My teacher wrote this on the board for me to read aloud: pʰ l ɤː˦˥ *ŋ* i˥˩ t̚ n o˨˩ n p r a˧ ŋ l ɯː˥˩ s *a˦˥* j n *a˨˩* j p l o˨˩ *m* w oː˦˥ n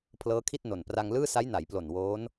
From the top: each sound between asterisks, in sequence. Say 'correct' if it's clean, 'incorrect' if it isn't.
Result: incorrect, correct, incorrect, incorrect

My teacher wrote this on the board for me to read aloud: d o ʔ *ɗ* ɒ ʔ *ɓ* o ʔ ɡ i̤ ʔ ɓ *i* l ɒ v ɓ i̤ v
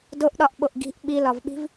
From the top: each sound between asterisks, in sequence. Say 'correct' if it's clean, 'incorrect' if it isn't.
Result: correct, correct, correct

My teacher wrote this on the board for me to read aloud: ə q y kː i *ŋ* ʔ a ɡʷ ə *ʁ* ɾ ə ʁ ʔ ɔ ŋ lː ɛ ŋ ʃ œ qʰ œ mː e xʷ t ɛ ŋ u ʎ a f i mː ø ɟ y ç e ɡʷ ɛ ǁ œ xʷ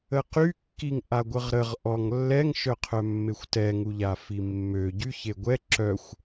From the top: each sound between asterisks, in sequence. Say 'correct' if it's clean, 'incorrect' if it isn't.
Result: correct, correct

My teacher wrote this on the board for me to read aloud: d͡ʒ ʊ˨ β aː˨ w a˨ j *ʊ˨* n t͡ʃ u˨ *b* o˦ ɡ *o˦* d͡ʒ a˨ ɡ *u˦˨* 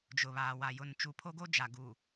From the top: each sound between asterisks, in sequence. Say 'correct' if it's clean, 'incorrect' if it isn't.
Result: correct, incorrect, correct, incorrect

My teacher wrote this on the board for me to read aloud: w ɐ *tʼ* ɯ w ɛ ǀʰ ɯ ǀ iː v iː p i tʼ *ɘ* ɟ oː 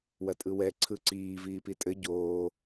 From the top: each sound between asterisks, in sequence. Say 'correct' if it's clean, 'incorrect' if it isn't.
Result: correct, correct

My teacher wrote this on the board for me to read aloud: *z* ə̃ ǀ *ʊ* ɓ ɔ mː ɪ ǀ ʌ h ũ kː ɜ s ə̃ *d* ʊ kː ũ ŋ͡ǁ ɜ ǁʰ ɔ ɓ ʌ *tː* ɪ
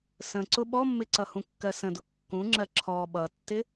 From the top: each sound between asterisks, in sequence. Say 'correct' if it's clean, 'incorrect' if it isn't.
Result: incorrect, correct, correct, correct

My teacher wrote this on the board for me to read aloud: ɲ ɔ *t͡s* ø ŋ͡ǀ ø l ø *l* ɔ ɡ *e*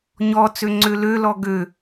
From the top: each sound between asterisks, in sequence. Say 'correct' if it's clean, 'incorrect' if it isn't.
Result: correct, correct, incorrect

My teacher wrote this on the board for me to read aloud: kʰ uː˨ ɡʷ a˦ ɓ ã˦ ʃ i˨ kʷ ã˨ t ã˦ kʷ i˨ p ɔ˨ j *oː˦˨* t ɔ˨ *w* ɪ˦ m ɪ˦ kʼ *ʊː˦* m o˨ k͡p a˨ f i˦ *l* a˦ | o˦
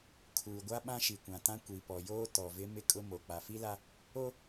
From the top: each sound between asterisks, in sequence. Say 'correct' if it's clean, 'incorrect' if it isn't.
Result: incorrect, incorrect, incorrect, correct

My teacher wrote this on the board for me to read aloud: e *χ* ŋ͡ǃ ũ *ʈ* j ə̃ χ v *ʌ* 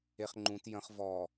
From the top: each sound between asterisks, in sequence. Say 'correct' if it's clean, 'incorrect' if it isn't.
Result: correct, incorrect, incorrect

